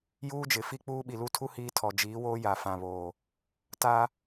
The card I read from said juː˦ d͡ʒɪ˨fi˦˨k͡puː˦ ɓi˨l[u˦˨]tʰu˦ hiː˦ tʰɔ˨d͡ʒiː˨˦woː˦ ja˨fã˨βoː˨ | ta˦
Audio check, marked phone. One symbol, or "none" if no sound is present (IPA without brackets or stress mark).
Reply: u˦˨